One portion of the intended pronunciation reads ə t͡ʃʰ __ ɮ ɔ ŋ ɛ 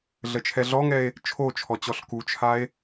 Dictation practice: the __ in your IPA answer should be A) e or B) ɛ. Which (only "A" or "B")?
B